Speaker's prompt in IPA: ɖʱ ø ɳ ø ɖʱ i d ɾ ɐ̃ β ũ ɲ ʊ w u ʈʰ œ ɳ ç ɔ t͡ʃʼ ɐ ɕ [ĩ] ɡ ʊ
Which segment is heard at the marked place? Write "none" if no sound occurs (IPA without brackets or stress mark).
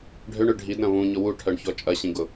ĩ